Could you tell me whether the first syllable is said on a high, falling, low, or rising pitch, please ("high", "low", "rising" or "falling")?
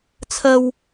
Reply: high